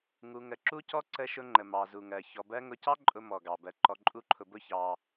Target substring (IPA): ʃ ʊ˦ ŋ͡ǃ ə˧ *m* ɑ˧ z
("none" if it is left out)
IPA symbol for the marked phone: m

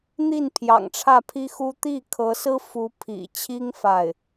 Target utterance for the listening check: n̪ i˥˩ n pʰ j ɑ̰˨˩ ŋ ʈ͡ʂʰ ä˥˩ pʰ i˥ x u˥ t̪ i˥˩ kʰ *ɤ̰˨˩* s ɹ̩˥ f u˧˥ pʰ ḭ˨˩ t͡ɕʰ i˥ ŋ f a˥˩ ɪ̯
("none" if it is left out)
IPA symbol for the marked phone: ɤ˧˥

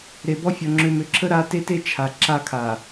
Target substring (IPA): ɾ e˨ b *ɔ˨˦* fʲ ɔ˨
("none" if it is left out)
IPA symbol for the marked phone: ɔ˦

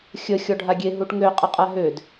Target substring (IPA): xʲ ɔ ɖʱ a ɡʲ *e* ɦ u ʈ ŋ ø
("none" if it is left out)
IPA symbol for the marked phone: e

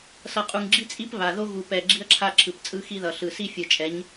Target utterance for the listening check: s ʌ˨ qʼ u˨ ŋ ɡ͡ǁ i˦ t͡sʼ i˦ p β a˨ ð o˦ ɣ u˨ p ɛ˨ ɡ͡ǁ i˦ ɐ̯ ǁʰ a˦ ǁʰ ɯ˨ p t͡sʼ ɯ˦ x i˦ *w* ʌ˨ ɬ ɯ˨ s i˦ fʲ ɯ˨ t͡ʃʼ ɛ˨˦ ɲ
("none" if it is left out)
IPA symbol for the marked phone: ð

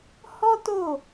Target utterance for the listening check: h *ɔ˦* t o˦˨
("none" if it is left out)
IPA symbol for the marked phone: ɔ˦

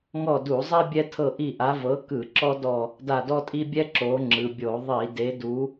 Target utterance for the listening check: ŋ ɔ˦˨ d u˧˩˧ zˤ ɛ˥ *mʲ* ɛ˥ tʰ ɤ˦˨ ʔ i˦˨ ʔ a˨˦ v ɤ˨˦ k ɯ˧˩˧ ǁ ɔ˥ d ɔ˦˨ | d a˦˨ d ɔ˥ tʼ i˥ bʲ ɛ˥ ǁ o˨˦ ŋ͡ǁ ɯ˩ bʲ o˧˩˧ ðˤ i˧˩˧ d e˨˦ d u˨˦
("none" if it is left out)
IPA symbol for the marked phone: bʲ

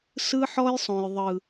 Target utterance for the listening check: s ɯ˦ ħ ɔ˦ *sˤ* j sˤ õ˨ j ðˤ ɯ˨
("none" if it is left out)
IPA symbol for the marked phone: none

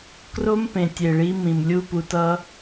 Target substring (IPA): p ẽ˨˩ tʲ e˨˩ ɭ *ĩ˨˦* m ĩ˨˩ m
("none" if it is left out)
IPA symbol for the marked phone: i˨˦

